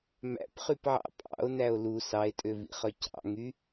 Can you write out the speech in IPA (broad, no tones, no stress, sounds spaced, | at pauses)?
m æ̰ p χ y p ʕ ɑ̰ pʼ ɑ̰ o̯ n æ o̯ l u s ɑ e̯ tʼ ø v ḭ χ œ c ɑ̰ ŋ y